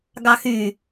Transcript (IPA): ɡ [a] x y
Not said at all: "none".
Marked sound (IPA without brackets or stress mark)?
ɑ